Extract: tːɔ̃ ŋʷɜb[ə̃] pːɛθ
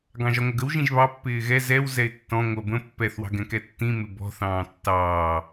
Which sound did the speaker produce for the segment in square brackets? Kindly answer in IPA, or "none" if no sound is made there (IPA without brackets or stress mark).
ə̃